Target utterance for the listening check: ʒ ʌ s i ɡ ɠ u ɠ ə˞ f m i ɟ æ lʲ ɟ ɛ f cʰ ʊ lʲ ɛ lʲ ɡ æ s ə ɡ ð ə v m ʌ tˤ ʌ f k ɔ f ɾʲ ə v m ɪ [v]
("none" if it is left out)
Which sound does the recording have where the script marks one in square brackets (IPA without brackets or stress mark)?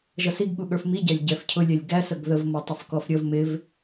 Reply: v